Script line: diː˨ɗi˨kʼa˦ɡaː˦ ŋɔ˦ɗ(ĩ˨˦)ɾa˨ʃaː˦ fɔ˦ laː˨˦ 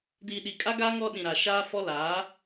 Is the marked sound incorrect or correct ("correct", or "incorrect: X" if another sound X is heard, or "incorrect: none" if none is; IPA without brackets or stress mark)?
incorrect: ĩ˨